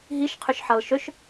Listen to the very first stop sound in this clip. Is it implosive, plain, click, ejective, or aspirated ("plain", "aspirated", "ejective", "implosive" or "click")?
aspirated